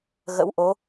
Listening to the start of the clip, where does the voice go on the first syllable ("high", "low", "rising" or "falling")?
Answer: rising